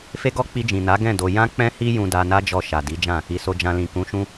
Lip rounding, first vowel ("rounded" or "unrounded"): unrounded